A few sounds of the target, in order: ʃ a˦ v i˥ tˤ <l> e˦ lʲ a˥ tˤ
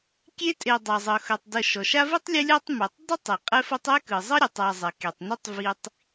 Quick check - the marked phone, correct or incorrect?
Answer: incorrect: lʲ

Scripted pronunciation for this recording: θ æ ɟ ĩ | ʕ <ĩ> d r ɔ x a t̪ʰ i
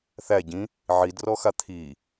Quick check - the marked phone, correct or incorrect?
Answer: incorrect: i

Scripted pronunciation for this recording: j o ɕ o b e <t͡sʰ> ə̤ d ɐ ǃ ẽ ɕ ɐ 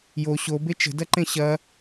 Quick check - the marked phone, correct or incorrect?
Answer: incorrect: t͡ʃ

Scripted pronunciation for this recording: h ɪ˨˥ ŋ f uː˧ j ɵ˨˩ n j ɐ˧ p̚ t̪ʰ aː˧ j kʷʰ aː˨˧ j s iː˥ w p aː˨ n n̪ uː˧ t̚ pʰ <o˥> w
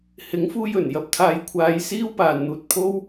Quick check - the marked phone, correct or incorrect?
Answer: correct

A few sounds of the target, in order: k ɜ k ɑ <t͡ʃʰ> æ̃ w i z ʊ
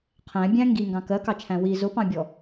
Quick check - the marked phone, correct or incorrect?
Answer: correct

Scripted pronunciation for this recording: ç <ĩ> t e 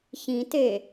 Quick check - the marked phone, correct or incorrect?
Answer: correct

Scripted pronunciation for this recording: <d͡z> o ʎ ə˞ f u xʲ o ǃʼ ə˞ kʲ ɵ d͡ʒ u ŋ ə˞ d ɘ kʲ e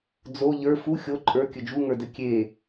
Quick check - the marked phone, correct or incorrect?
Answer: correct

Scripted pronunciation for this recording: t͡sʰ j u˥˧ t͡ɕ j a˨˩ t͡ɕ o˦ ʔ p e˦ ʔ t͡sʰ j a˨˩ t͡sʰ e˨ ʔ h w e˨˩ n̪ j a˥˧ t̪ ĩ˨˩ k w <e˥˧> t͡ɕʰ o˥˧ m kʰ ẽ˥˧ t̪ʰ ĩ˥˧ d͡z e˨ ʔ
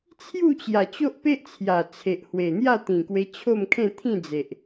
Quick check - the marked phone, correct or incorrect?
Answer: incorrect: e˧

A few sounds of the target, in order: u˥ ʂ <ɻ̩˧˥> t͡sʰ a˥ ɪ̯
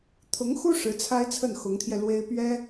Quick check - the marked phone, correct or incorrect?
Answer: correct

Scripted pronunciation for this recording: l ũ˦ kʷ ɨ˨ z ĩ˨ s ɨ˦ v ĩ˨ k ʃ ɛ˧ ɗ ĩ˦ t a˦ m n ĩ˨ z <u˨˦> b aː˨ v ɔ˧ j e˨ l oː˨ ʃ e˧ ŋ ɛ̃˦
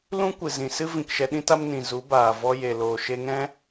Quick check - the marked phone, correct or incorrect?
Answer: correct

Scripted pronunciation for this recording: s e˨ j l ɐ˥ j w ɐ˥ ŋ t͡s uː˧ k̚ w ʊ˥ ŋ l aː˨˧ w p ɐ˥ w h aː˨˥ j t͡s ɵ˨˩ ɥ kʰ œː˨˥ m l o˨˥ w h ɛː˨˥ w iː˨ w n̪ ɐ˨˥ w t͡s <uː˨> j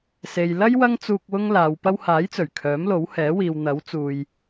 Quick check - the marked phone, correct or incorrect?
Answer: correct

